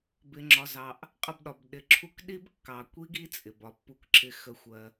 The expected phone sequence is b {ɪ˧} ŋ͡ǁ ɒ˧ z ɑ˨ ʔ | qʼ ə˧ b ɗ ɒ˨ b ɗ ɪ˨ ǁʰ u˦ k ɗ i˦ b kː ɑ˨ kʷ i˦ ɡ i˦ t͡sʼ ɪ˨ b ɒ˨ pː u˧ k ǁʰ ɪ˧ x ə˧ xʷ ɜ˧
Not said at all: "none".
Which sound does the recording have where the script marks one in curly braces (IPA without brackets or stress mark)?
ɪ˧